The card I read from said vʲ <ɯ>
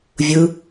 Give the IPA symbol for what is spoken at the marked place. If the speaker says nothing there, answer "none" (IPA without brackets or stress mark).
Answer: ɯ